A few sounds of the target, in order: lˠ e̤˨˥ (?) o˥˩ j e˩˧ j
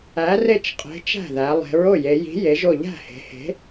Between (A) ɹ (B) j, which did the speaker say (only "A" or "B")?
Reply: A